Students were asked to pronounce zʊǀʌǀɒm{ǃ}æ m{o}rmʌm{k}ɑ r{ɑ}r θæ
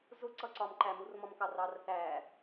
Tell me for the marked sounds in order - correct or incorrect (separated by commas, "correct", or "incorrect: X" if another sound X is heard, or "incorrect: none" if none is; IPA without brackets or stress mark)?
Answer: correct, incorrect: u, correct, correct